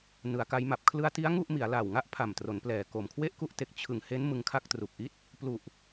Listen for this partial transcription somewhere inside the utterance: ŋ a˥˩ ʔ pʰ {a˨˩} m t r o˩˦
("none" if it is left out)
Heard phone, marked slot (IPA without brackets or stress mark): a˨˩